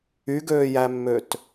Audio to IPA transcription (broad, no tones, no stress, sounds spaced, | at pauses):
y ɡ øː j æ mː ø t